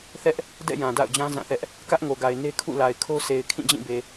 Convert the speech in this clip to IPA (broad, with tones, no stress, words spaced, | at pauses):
θɛ˦ʔ | dɛ̰˦˨ jã˨da̰˦˨ʊ̯d͡ʑã˦ zã˦˨θɛ˦ʔ | kä˦ʔŋo˨ɡa˨ɪ̯ ne˦ kʰṵ˦˨la˨ɪ̯kʰo˦sʰe˨ɪ̯ kʰĩ˦˨d͡ʑĩ˦˨be˨